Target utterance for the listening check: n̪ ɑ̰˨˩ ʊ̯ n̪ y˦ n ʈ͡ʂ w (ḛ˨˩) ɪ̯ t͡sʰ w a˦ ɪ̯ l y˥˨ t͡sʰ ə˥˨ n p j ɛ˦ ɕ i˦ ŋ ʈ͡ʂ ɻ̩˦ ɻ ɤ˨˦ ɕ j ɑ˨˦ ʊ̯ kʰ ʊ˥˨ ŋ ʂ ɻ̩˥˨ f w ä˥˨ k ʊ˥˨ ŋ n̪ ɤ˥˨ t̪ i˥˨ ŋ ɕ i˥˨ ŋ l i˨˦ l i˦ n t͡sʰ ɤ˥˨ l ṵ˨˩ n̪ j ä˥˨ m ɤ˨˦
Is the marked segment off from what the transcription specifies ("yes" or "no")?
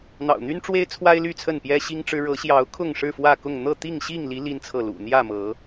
yes